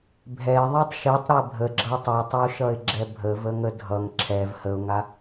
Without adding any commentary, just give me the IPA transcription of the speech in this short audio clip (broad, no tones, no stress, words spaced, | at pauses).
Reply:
bʱɛɪ̯ ðˤitˤʃitˤ ɾɛbʱəɡ͡ǁʌ tˤʌtˤəʊ̯ʃʌɪ̯ɡ͡ǁɛ bʱəvəŋə dʱʌŋ ǁʰɛv həʊ̯ŋa